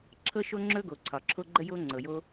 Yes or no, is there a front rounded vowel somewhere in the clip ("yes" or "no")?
no